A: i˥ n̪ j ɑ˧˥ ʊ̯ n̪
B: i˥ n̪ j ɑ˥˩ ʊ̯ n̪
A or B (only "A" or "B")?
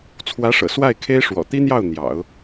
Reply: B